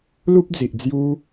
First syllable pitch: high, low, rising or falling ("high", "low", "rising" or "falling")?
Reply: high